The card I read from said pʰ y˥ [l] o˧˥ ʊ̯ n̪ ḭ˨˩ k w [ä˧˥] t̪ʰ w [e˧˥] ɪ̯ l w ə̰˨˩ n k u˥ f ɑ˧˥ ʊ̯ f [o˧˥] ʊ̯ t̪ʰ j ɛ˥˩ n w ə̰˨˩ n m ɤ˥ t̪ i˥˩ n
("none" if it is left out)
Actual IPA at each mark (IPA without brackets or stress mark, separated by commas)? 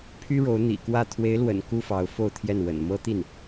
ɻ, ä˥˩, e˧˥, o˥˧